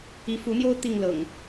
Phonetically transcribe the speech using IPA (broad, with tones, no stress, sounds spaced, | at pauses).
i˨˦ f u˨˦ n̪ j o˦ ʊ̯ t̪ i˥˨ ŋ l ɤ̰˨˩ ŋ